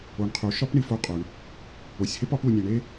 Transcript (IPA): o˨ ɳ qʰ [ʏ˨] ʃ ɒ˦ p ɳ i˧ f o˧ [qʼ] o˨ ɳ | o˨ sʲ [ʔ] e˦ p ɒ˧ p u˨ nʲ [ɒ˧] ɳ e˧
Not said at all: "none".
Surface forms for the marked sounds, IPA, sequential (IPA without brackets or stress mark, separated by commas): u˨, qʼ, h, ɒ˨